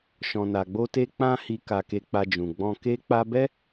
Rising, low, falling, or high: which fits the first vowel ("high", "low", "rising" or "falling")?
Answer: low